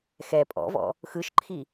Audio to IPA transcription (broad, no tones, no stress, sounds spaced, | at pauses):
x ɛ pʼ ɔ̰ v ɔ̰ | x ɯ ʃ ǃʰ i